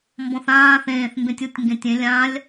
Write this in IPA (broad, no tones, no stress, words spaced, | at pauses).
mbɔ̃θãː θẽːθ mbẽtʲutʲ ŋɡẽtʲẽ lʲãlʲ